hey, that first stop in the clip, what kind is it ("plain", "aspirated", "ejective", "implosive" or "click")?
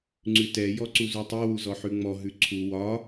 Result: click